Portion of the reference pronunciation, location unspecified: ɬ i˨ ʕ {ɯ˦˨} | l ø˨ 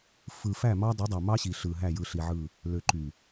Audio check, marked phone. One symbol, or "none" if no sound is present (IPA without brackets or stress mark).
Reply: ɯ˦˨